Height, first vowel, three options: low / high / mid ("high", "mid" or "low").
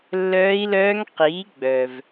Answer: mid